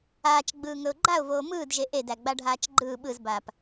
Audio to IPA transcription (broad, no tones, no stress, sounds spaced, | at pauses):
aː t͡ʃ ɡ͡b ɯː ŋ ɵ ʊ̯ ɡ͡ǃ a ʊ̯ v oː m ɯː d ʒ e ʔ e d æ ɡ͡b a ɖʱ aː t͡ʃ ɡ͡ǃ ɯː ɓ ɯ z b aː p